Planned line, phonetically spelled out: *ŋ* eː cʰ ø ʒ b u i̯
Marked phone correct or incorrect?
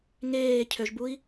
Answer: correct